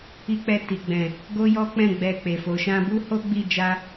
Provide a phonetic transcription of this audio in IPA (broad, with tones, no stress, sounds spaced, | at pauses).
i˧ k͡p ɛ˧ t i˨ ɡ͡b ɛ̃˨ | ɡ o˦ j ɔ˦ k͡p ɛ̃˦˨ ɡ͡b ɛ˧ k͡p e˨ f o˨ ʃ ã˧ b u˦ h o˦ ɡ͡b i˦˨ d͡ʒ a˧